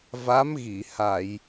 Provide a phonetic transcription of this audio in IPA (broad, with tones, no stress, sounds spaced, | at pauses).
v a˧˥ m ɣ i˨˩˨ h a˨˩˨ j